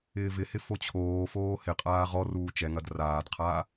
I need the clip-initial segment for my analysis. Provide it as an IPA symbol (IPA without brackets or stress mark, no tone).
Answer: ɪː